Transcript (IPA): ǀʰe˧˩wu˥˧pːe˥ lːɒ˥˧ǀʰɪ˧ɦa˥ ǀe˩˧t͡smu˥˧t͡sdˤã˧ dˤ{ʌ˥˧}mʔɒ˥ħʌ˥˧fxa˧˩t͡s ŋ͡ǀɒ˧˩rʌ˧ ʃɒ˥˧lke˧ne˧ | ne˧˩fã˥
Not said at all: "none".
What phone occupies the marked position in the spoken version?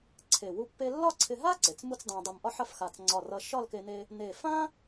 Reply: ʌ˧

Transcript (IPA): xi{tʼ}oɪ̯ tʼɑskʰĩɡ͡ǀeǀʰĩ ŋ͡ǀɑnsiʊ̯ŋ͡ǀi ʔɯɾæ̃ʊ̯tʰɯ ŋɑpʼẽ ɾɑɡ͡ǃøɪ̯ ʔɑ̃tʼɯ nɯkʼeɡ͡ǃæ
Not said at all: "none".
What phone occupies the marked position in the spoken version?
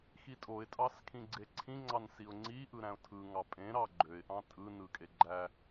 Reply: tʼ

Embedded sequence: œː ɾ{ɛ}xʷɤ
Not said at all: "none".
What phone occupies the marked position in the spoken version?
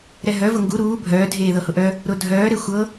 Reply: e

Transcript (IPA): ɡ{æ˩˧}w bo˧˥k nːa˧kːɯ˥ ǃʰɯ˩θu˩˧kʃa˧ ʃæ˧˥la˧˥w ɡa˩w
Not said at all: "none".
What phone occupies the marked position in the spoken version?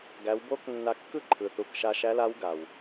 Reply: æ˩˧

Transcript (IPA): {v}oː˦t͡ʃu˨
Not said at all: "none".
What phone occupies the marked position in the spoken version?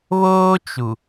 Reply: β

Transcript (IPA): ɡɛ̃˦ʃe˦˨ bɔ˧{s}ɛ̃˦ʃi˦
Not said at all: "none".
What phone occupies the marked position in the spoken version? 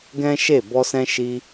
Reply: s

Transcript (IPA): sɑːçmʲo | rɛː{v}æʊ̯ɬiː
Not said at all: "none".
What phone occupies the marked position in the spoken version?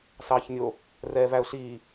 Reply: v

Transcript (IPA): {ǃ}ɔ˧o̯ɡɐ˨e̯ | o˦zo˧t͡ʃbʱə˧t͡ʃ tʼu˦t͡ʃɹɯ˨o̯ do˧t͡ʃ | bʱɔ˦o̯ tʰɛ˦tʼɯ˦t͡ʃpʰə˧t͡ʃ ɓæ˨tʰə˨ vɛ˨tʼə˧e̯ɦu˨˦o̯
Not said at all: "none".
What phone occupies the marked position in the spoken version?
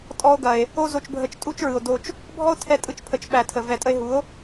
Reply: tʼ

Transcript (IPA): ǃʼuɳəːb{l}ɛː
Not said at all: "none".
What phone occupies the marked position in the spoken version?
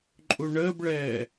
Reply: ɭ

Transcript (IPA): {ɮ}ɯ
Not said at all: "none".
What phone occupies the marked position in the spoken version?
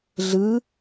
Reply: ɮ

